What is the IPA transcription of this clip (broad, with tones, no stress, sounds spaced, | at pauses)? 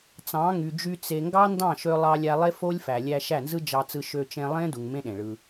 t͡s ɑ̃˨˦ ŋ y˨ d͡ʒ y˧ t͡s e˨ ŋ ɡ ɑ˦ n d ɑ̃˦˨ ʃ ø˧ lˠ ɑ˧ lʲ æ˧ lˠ e˦ f o˦ lʲ f æ˨ lʲ æ˧ ʃ æ˦˨ n z ɯ˦ d͡ʒ ɑ˧ t͡s ɯ˧ ʃ ø˧ t͡ʃ ẽ˧ lˠ ẽ˦ d u˧ ŋ m ẽ˦ ɗ ẽ˨ ɭ ɯ˧